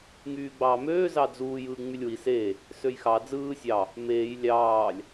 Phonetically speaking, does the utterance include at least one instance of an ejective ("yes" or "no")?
no